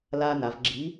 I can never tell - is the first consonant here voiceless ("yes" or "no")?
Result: no